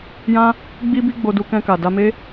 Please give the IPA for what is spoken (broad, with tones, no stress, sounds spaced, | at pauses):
j ã˧ | ɡ͡b i˧ b i˦ ɡ͡b o˧ d u˧ k ɛ̃˧ k a˨ d a˧ m e˦